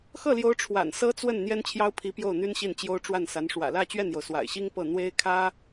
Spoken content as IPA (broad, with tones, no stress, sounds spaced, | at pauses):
x ɤ˥˩ l j o˧˥ ʊ̯ ʈ͡ʂʰ w a̰˨˩ n s ɤ˥ t͡s w ə˥˩ n n̪ j ɛ˥ n t͡ɕʰ j ɑ˥ ʊ̯ pʰ i˧˥ p j o˥˩ ʊ̯ n̪ y˥ n ɕ i˥˩ n t͡ɕ j o˥ ʊ̯ ʈ͡ʂ w a˥˩ n s a˧˥ n ʂ w ä̰˨˩ l ä˥˧ t͡ɕ ɥ ɛ˥˩ n j o˩ ʊ̯ s w a̰˨˩ ɪ̯ ɕ i˥ ŋ p ɤ˥˩ n̪ w e˥ ɪ̯ kʰ ä˥